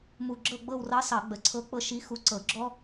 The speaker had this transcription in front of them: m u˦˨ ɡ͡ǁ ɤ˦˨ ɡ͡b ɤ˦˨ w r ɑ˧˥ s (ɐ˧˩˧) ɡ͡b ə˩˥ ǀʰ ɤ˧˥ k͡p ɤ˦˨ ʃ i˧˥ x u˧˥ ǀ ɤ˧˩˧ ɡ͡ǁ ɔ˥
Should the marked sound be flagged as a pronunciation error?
yes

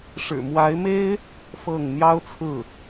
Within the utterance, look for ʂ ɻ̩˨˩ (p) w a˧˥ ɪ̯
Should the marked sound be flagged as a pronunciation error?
yes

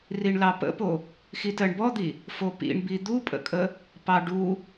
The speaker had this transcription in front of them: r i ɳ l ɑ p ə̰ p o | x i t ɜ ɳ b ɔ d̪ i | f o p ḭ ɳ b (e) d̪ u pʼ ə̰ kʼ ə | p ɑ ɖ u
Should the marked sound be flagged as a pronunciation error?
yes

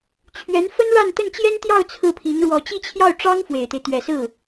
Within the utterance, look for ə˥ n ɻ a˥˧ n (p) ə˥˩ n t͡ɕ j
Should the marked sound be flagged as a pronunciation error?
yes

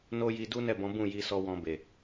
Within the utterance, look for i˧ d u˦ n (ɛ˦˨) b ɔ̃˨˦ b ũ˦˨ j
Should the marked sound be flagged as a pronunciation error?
no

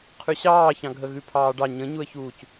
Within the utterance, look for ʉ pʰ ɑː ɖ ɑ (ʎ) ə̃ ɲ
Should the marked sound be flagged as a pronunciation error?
yes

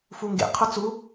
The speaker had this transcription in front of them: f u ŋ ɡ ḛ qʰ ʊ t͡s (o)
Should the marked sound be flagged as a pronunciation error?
yes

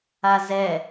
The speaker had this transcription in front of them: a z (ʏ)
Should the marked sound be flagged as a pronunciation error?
yes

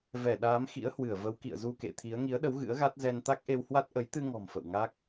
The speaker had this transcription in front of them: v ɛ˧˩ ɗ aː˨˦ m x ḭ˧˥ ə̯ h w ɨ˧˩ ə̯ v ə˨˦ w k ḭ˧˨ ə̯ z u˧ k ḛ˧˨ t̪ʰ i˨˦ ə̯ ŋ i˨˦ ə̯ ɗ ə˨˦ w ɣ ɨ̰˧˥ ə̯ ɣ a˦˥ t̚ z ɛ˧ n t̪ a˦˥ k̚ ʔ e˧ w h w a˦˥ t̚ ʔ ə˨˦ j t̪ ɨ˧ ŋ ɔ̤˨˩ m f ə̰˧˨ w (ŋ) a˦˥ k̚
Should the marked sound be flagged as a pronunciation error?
no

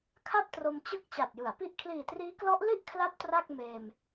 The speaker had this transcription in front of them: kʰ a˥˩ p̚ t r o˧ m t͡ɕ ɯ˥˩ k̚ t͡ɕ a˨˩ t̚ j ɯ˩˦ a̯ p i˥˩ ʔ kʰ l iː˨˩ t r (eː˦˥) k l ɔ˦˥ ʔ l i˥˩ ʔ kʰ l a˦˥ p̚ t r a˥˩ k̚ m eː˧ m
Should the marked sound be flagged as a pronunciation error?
yes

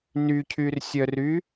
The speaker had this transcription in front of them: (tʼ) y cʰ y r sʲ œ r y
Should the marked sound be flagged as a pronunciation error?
yes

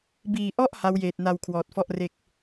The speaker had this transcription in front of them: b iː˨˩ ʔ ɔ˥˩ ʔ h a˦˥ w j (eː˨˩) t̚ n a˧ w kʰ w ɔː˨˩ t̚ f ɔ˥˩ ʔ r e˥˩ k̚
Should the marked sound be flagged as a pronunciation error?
no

